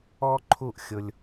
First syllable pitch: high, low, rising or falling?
high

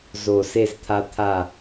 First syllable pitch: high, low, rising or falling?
low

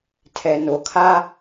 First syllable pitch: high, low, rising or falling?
low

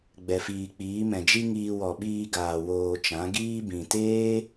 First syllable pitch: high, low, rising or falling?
low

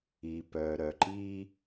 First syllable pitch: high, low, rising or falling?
low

